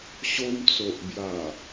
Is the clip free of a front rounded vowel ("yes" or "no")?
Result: yes